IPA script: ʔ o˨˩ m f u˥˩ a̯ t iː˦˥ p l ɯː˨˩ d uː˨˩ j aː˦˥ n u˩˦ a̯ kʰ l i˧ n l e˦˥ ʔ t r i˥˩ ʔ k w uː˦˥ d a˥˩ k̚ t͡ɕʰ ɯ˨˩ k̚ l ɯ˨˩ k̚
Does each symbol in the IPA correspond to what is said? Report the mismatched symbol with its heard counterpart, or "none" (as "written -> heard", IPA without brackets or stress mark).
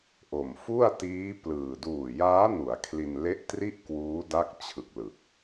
none